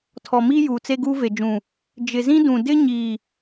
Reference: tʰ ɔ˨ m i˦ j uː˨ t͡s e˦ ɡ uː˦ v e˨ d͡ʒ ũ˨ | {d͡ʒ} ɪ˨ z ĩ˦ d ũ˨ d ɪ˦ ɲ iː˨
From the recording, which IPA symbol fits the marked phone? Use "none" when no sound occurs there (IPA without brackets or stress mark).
d͡ʒ